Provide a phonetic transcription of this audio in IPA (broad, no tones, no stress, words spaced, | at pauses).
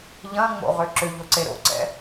ʎɐ̃ŋ͡mo̰ ʁøǁʏʎʊ ǀeɾo̰ǀɛ̰